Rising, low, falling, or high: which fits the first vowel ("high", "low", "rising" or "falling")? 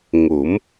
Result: rising